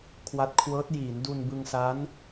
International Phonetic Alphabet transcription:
kʰwa˦˥t̚kʰwɤː˦˥t̚ jiː˩˦ndu˧n bɯ˧ŋsa˦˥n

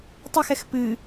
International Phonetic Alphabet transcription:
tˤɨxɛx pɨ

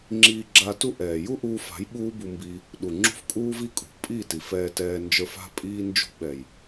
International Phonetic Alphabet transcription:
ŋ͡ǁiː˧ɡ͡ǁa˧tu˦ʔɛː˨ ju˦ʔuː˧fa̤˨˦j ɓuː˦bu˧mbi˧ | ɗu˨ ŋ͡ǁṳ˧fkʼuː˧vi˧ kʼṳ˨pʼi˦˨ti˨f ɛː˧tɛː˧nd͡ʒə˞˧f a̤˧pʼiː˧ nd͡ʒṳ˧ɓɛ˨j

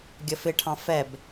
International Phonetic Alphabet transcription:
ɡʲəfɪʈʰɑ̃ fɛb

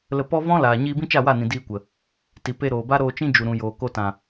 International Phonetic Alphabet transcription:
lə˧ pɔ˦ vɔ̃˦laː˨ ɲiː˧ bĩ˦t͡ʃa˦˨wa˦˨nĩ˨ diː˧kʷə˨ | ti˨pe˧ɾoː˨ba˦ ɾoː˧t͡ʃĩ˦ d͡ʒu˨ɾũ˨joː˨ko˧ tã˨

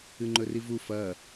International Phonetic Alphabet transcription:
ɨŋ͡ǃɵrivu fɐ

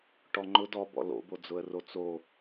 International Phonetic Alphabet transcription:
ʈɔŋ͡ǃʊ dɔbɔ̰ lo̰bod͡zʊə̯ rot͡so

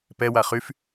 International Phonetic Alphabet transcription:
pɛ waχyf

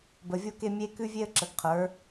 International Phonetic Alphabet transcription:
bə˨vʲo˦ke˦mʲe˦ kʉ˦vʲe˦ə̯ǁə˨ɡqʰə˞˨˦

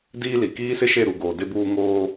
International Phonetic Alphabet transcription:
diː˦li˨ kiː˦sɪ˦ʃe˦˨ɾu˨ ɡoː˨dɪ˦buː˦ ŋoː˦

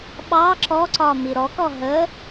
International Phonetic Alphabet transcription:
ɓɑ ǁɔǀɒ miɾɔkɔ ɦə

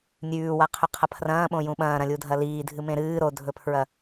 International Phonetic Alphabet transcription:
nʲʉːwaqʰɵqʰɐ pʰrɐ̃ːɓõjũ ɓɐ̃ːɾɐ̃lʲudʱɐ liːdʱɨmẽ ɾɨː ɾodʱɵpʰɹɐ

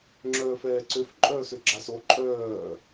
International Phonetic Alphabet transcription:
ŋ͡ǁœːfɛːǀøf ǃʼœːsøɡ͡ǁas o ǃʼœː

